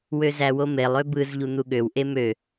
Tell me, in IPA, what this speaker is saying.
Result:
w ø z æ w o m e lˠ ø b ɯ z ʎ u n̪ u ɠ ø w ʔ e m ø

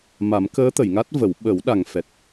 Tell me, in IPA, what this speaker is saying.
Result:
m a˨˩˦ m k əː˧˥ t̪ ə˨˩˨ j ŋ a˦˥ t̚ v ə˨˩˦ w ɓ ə˨˩˦ w ɗ a˨˩ ŋ f ɛ˨˩ t̚

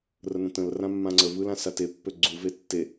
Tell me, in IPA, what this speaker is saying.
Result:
r ə n ə̃ t ə̃ l r ã mː ã ŋ͡ǀ ə v ɯ l ã s a t e pː ø ɡ͡ǀ u v e tː e

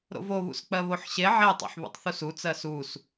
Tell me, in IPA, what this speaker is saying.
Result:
ɾ o̰ v o β ṵ s k͡p ɜ β o ħ ɕ e ʕ e tˤ o̰ ħ β ṵ tˤ θ u s u t͡s ɜ s u s

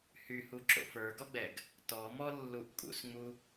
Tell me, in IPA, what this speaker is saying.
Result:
h y h u ǁ o̰ f ə˞ ɡ ɔ ɡ͡b ɛ ɡ | t ɔ m ɔ lː u ʔ kʼ ṵ s ŋ͡m u

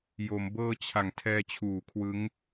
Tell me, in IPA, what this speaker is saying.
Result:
j o˩˦ m b ɤː˧ t͡ɕʰ a˩˦ ŋ tʰ ɛː˧ t͡ɕʰ uː˩˦ kʰ w ɯ˦˥ ŋ

